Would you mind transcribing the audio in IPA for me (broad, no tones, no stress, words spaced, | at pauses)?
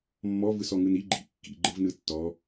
mːɔvɯsɔŋɯn i ɡ͡ǃḭ kːḭɡ͡ǃɯvnɯ tːɔ